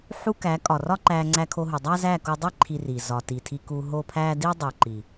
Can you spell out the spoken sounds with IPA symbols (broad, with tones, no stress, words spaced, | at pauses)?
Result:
ħu˧ kæ˨˦kʼɒ˨rɒ˦ ǃæ˧ŋ͡ǀæ˧kʰo˧ɦu˨ dˤæ˦zæ˦˨ku˧dˤi˦ ǃʰi˧ri˨ zɒ˨ti˨tʰi˧ku˧ ɦo˦˨pʰæ˦ di˦dˤi˨ ǃi˨